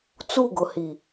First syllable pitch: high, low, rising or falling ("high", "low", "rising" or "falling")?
falling